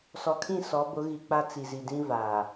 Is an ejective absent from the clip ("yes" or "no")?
yes